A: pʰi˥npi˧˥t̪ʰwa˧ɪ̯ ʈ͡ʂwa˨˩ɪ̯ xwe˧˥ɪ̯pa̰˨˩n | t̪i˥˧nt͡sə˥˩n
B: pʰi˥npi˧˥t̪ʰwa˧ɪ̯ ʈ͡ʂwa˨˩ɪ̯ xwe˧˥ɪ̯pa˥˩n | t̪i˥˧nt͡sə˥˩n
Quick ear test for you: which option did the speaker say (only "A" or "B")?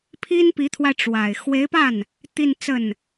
B